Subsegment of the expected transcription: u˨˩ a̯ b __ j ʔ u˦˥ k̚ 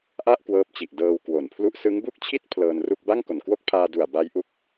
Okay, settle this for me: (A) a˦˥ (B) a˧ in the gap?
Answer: A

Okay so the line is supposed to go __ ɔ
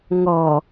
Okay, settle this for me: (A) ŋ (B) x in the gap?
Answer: A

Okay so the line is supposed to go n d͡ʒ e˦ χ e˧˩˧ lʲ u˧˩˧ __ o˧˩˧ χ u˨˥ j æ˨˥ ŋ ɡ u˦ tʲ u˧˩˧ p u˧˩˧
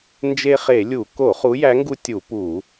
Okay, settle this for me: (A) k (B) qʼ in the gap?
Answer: A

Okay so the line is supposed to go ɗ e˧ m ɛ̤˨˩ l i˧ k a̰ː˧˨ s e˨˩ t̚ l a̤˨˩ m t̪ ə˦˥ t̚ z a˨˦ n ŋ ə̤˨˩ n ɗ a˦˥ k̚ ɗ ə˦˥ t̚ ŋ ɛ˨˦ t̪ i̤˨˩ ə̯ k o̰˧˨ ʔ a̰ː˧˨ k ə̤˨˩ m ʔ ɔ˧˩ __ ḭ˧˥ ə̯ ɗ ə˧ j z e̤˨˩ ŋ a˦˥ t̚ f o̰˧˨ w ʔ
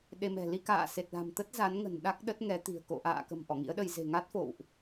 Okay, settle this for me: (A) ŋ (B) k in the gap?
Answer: A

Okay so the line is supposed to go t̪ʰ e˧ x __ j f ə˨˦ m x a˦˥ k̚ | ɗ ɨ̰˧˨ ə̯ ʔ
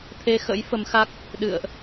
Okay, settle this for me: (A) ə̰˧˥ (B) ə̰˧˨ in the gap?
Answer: A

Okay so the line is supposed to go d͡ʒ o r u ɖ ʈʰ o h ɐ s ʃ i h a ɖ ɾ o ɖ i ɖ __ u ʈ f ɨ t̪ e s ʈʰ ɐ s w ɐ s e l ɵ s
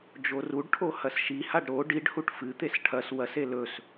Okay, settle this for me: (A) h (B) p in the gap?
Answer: A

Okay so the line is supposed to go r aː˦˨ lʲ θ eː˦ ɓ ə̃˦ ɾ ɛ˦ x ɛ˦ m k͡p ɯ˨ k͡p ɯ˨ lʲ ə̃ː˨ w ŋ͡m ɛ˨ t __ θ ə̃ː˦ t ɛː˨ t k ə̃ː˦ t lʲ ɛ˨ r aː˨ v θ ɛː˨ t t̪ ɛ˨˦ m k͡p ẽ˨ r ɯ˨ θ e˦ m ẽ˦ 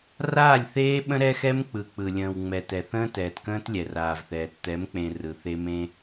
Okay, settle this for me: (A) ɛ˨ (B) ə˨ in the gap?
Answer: A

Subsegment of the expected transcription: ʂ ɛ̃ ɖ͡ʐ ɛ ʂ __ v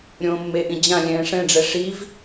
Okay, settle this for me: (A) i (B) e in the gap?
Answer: A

